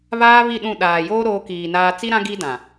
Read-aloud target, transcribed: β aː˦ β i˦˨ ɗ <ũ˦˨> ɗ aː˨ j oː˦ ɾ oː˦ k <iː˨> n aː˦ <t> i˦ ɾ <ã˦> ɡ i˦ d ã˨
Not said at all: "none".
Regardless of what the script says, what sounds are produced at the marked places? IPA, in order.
ũ˦˨, iː˨, t͡s, ã˦

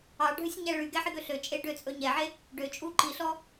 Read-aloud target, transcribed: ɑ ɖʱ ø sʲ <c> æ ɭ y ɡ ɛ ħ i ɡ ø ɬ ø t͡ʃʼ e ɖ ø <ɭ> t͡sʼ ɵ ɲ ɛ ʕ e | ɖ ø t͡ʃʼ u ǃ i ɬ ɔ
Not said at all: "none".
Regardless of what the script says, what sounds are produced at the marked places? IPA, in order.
ɲ, none

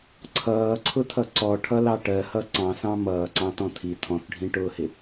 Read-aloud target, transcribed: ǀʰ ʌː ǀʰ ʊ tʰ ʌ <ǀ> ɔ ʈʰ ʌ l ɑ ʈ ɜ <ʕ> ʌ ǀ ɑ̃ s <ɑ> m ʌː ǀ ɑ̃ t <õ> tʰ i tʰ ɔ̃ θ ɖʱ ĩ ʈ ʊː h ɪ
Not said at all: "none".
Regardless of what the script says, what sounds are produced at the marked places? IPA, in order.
ǀ, h, ɑ̃, ɔ̃

